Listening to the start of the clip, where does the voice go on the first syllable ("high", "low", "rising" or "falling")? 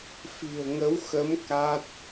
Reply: low